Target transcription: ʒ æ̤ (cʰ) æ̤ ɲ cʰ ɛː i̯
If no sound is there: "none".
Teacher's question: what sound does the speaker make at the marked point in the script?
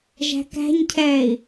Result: k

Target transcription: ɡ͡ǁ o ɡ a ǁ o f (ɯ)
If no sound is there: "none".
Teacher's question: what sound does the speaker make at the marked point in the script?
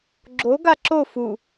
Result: u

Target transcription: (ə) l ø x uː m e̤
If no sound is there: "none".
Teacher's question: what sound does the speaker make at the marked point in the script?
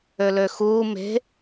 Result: ø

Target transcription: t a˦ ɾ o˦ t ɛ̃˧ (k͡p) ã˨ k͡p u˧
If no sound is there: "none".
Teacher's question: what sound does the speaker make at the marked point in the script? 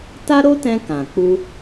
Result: k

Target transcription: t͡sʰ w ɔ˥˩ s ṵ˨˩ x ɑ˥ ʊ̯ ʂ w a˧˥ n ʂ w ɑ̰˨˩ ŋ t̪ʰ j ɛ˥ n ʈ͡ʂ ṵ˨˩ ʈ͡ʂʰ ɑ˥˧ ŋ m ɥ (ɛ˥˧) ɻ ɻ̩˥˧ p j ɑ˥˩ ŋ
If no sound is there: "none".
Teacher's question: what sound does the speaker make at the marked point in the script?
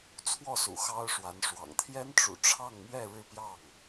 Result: ɛ˥˧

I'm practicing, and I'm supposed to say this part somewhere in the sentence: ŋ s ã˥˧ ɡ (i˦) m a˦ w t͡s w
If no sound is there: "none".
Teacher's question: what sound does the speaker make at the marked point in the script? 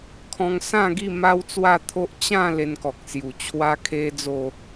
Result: i˥˧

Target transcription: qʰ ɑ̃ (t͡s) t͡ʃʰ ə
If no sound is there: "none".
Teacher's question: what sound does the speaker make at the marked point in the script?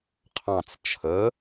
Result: t͡s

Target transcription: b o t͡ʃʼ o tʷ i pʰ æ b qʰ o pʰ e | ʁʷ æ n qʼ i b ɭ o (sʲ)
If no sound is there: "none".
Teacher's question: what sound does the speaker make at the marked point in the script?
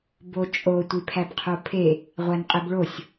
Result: sʲ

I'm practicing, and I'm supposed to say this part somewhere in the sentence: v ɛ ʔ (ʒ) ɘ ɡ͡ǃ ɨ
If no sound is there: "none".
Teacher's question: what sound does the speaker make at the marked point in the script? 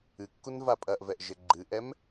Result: ʒ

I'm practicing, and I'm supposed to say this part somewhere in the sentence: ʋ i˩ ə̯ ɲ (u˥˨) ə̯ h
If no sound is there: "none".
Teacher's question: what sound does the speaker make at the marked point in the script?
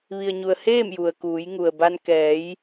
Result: u˩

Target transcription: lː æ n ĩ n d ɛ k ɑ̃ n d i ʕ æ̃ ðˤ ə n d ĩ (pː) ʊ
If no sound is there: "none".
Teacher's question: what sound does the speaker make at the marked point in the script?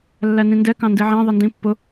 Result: pː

